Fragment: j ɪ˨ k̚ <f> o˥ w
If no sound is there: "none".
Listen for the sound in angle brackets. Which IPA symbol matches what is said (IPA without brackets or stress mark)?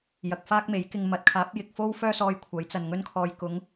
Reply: f